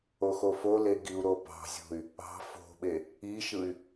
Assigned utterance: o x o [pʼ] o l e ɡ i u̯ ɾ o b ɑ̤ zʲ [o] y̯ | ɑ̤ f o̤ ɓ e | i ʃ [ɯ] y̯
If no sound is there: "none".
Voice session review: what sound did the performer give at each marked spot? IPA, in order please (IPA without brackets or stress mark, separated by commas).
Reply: f, o̤, ɯ